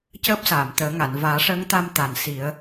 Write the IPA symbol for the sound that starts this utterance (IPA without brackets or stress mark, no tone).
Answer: c